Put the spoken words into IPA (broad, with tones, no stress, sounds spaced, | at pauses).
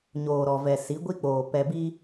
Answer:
ɲ oː˨ ɾ ɔ˨ v ɛ˨ s i˨˦ ɡʷ i˦ k͡p oː˨ p ɛ˨ b i˦